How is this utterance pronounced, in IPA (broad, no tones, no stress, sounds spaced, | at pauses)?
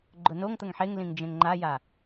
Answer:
ɡ͡ǃ ʊ n o ŋ t̪ ə ŋ ħ e ŋ l ĩ ŋ d͡ʒ ẽ ŋ ŋ͡ǃ a j a